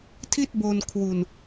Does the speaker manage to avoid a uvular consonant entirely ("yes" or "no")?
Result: yes